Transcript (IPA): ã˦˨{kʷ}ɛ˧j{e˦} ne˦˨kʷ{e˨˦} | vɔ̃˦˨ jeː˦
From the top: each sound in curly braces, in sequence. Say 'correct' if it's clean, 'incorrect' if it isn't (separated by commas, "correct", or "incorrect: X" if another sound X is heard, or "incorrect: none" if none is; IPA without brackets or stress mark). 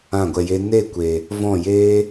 incorrect: ɡʷ, correct, incorrect: e˨